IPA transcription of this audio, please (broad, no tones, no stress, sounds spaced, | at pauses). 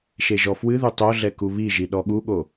ʃ e ʒ ɔ f w ɨ ð u tˤ o ɮ ɛ k u β i ʒ i ɗ ɔ ɠ u ɠ o